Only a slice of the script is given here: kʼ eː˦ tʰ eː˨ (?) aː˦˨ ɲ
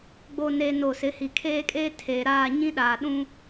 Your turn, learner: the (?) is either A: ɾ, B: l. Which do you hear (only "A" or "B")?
A